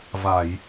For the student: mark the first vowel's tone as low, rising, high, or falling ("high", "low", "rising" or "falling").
low